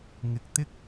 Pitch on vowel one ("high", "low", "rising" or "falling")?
low